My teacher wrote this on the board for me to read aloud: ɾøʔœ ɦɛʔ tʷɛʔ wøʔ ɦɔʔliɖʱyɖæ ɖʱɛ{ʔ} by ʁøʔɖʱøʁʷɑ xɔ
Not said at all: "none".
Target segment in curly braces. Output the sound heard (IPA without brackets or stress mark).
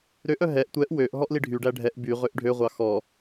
ʔ